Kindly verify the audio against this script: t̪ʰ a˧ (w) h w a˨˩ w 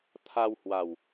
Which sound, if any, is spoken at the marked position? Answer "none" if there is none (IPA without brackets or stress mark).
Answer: w